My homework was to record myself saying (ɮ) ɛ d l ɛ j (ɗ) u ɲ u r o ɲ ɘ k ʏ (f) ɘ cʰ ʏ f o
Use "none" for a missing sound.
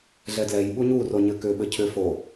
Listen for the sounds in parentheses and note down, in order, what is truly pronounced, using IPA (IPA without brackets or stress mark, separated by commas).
ɮ, ɓ, ɓ